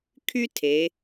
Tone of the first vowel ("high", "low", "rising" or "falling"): high